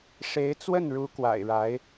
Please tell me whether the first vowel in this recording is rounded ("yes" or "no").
no